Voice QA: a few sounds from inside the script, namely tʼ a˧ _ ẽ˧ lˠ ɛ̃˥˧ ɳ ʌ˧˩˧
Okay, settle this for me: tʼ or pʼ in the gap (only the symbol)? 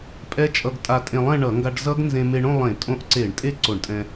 tʼ